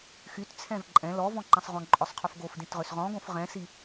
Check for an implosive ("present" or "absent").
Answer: absent